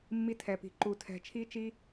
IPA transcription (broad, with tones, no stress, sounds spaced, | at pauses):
mː i˦ tʰ ɛ˧ p i̤˧ ǃ u˧ tʰ ɛ̤˧ t͡ʃʰ i˦ t͡ʃ i˦